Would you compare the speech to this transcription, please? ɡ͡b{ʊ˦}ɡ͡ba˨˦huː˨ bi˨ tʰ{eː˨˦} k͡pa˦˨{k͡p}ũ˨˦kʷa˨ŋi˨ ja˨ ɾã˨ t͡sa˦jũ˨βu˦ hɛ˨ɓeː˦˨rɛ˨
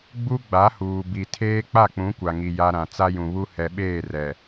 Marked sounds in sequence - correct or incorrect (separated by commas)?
incorrect, incorrect, correct